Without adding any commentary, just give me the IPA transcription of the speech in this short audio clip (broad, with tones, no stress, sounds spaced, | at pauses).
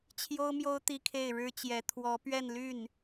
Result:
t͡ɕʰ j o˥ ʊ̯ m j o˥ ʊ̯ t̪ i˥ kʰ e˥˩ ɪ̯ ɻ ɻ̩˥ t͡ɕ j ɛ˧˥ t̪ʰ w ɔ˧˥ p ɥ ɛ˥˧ n l y˥˩ n